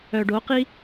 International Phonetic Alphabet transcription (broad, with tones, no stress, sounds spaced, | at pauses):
œ˨ ɖ o˨˦ q i˦